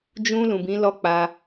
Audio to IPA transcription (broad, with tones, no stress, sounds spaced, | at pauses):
d͡ʒ ũ˧ l ũ˨ b ĩ˨˦ l ɔ˦ k͡p a˧